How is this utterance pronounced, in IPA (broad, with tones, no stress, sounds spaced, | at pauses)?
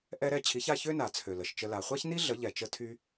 ʔ ɛ˥ ɾ ɛ˥˩ t͡ɕʰ i˩˥ ç a˥˩ ç ø˥ n a˩ t͡sʰ ø˩ l ə˩ ʃ t͡ʃ ə˧ l a˩ χʷ a˥ ç n i˥ ɮ ə˩˥ ʎ ɛ˩ t͡ʃ ə˧ tʰ y˧